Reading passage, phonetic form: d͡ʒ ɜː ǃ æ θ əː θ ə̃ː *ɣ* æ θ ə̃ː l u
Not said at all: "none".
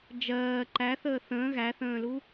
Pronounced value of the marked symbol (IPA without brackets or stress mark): ɣ